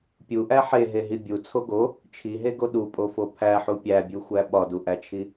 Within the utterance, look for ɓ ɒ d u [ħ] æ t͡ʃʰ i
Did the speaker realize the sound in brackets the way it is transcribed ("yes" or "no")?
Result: no